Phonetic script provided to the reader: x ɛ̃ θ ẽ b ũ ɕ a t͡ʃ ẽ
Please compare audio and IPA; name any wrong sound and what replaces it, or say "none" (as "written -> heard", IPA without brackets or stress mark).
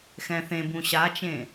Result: none